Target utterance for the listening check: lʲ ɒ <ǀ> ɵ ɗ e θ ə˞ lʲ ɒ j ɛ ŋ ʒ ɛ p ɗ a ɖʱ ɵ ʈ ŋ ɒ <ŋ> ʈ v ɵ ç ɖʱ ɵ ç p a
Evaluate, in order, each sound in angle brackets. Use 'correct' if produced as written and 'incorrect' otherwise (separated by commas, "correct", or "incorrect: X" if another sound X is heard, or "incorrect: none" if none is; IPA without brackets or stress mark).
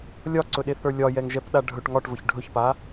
correct, incorrect: none